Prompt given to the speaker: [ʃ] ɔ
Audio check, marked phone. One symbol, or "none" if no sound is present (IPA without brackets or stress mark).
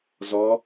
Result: z